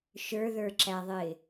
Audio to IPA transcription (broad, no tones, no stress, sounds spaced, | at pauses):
ʃ ə˞ ð ə˞ ǁ æ ðˤ ɪ